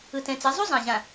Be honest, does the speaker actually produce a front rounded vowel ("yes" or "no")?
no